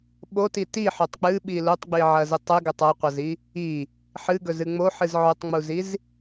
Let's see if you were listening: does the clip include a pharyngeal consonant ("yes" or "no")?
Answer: yes